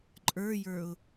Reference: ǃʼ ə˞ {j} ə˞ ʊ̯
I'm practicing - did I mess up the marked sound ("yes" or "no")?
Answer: no